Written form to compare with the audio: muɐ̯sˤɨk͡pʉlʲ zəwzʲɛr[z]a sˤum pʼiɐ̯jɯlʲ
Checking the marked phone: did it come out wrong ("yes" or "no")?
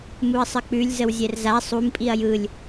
no